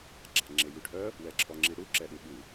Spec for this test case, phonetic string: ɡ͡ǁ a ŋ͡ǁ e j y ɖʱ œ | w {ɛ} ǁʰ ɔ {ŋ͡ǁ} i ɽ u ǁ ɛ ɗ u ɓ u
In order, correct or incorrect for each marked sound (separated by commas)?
correct, correct